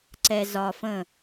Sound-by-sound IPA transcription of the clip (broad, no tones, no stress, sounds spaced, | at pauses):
ǀ ɛ z ɒ f ə̃